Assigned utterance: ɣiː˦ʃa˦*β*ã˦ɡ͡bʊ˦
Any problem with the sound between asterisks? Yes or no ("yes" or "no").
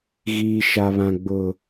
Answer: no